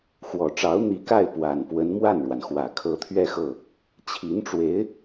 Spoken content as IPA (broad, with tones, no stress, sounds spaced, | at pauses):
x w ɔ˨˩ ʈ͡ʂ ɑ˧˥ ʊ̯ n̪ i˧˥ k a˥˩ ɪ̯ p w a˨˩ n p w ə˧˥ n m w a˥˩ n ɻ w a˩ n x w ä˨˩ kʰ ɤ˧˥ t̪ʰ ɥ ɛ˥˧ x ɤ˥˩ | t͡ɕʰ i˧˥ n ʈ͡ʂ w e˧˥ ɪ̯